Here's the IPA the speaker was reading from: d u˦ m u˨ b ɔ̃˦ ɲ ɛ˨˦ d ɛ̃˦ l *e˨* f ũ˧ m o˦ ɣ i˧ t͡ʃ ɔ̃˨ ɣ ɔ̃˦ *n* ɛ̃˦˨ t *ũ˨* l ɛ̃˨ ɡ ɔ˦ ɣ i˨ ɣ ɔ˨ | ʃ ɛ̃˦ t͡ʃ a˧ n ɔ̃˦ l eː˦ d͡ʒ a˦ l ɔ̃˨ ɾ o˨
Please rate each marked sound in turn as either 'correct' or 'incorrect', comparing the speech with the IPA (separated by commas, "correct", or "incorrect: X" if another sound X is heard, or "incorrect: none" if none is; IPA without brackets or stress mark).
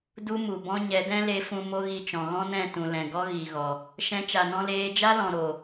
incorrect: e˧, correct, correct